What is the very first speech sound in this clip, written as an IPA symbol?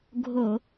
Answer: ɡʱ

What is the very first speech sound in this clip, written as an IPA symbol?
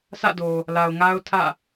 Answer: s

